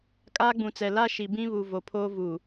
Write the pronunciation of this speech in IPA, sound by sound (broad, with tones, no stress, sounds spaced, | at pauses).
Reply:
kʼ aː˦ ɡ͡b ũ˨ t͡s ɛ˨ l a˦ ʃ i˨ b ĩ˦ β u˨ v o˨ pʰ oː˦ v uː˨